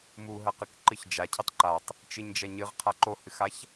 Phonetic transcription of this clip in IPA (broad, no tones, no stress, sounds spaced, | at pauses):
m u ɦ ɐ q ɨ k ǃ ɨ ç d͡ʒ a cʰ i tˤ ǃ a tˤ | t͡ʃ ɨ ɲ d͡ʒ ɐ ɲ ɨ ʁ qʰ a ǃ o h ɨ x a ç